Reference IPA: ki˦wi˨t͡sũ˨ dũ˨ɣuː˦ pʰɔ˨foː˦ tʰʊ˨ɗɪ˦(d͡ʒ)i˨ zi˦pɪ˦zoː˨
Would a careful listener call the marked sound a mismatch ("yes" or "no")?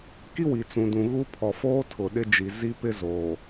no